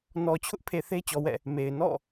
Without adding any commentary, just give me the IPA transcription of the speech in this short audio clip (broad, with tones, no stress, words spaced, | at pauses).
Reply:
nɔ˨t͡ɕʰʊ˦ʔpʰe˨ θe˦t͡ɕɔ˨wɛ̰˦˨ | me˨ɪ̯ nɔ̰˦˨